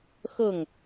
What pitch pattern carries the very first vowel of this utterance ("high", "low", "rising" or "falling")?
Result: falling